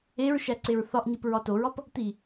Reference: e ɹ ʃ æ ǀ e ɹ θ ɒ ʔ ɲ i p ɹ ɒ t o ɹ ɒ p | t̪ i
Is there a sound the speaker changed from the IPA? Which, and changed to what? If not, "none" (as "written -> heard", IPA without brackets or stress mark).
none